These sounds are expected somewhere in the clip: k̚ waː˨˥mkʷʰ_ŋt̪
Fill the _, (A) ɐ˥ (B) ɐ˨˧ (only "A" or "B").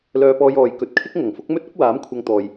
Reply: B